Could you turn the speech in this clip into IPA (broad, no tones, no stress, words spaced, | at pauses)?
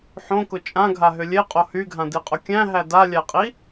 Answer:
ħõkʊ t͡ʃʼãɡʱaɦʏ lʲeqʼo hyɡʱãdiqʼʊ kʲæ̃ɦæ dalʲæqʼi